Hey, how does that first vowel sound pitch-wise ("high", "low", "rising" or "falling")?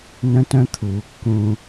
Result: high